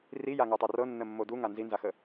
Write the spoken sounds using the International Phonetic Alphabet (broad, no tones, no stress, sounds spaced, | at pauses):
r i j a ŋ o tˤ ɤ r ɤ nː ə mː o d u ŋ a n z i n z a x ə